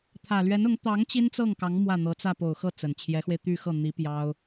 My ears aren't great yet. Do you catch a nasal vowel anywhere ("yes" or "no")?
no